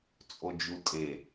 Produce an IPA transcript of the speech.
t͡sʼ o d͡ʒ u tʼ e

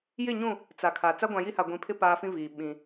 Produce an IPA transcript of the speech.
j ɪ˦˨ ɲ ũ˦˨ | t͡s a˨ kʰ a˨ t͡s a˦ ɡʷ ã˨ j i˦ h a˨ ɡʷ ĩ˨ pʰ ɪ˦ p aː˦ f ĩ˦ v iː˨ ɓ ĩ˨

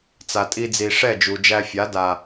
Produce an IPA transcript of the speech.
t͡s a˨ tʼ i˧ d͡z i˨ ʂ ɛ˦˨ d͡ʒ u˨ d͡ʒ æ˧ fʲ a˨˦ d a˨

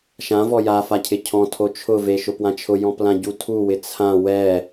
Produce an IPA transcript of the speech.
ʃ ã v ɔ j a f a cʰ ɪ cʰ ɔ̃ tʰ o t͡ʃʰ ʊ v e ʃ ʊ p w ã t͡ʃʰ ʊ j ɔ̃ p l ã ɟ u tʰ u w ɪ t͡sʰ ã w ɛ

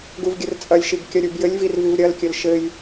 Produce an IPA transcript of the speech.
ɡ u v ɡʲ ɘ r t͡sʼ ɐ lʲ ʃ i ɡ kʲ ɐ ɾʲ u b j ɘ lʲ v i r v i v ɾʲ ɐ l kʲ ɘ l ʃ ɘ j

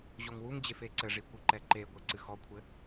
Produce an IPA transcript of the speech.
ʑ o ŋ w u ŋ d͡ʑ e f e ǀ ɘ ʐ i kʷ i ǃ ɛ ǃ e ɡʷ e ǀ ɨ x ɔ kʷʰ ɘ

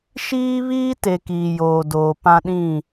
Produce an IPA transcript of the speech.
ʃ iː˦ β iː˦ t e˨ k iː˨ j oː˨ d oː˨ p ã˦ ɗ ĩ˦˨

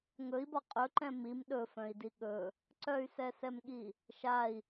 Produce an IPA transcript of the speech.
ŋ ɵ i̯ b ɒ qʼ ɵ ǃ ɛ̃ m i m ɗ ɵ f œ̃ i̯ d i ɠ ɵ | ǀ œ y̯ s ɛ s ɛ m ɠ i | ʃ a i̯

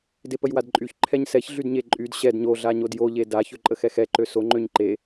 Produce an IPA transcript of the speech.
d e p ə j w a d ǃʼ y ç ǃʰ ɛ ɲ s ɛ ç ɮ y d ɲ e ǃʼ y d ɕ ɛ d ɲ o ɮ a ɲ o d j o ʎ e d a ç ø ǃʼ ə x ɛ x ɛ ǃ ø s o ŋ͡ǃ ø ɲ ǃ e

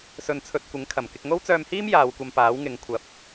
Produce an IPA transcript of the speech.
s ɵ˧ n t͡sʰ ɵ˧ t̚ kʷ ɪ˨˥ ŋ kʰ ɐ˨˩ m k ɪ˨ k̚ ŋ o˥ w t͡s œː˧ m h iː˥ m j aː˨˧ w kʷ ɐ˧ m p aː˨˥ w ŋ ɪ˨˧ ŋ kʷʰ ɐ˨ p̚

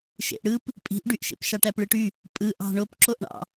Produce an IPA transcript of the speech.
ʃ ḛ ʔ ɽ ɯ p | pʼ i̤ ʔ ɖ y ʔ ʃ ḛ p ʃ ɑ ʈ æ p ɭ ɯ ʈ y | pʼ ɯ ʔ ɑ̤ ɳ o p ǁ o ʔ ɳ ɑ̰

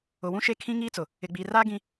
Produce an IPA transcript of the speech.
ʊ˨ w ũ˦ ʃ e˦ kʰ ĩ˦ ŋ iː˦ t͡s ʊ˨ | ɪ˨ ɡ͡b iː˨ r aː˦ ɡ ĩ˦

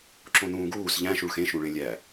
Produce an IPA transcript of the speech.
ǁ õ n ũː ɡ uː s ʎ æ̃ ʃ u ɭ x ẽ ʃ ũ ɭ ẽ lʲ æ

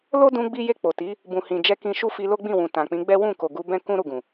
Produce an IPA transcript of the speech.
l o˦ d ũ˧ ɡ͡b i˦ j e˦˨ k͡p o˨ t i˨˦ | b ũ˨ h ĩ˨ d͡ʒ ɛ˧ k ĩ˧ ʃ u˦ f i˧ l o˦ ɡ͡b ĩ˦˨ w ũ˨ t ã˨ k͡p ĩ˨˦ ɡ͡b ɛ˦ w ũ˦˨ k o˨ ɡ u˧ b ɛ̃˦ k ũ˦ ɾ u˦˨ ɡ ũ˨

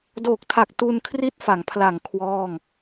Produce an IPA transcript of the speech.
d oː˨˩ k̚ tʰ a˨˩ k̚ t u˧ n kʰ r i˦˥ t̚ f a˩˦ ŋ pʰ l a˨˩ ŋ kʰ w ɔː˥˩ ŋ

